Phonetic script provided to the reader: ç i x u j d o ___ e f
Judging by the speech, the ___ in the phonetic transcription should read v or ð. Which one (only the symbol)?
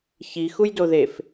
ð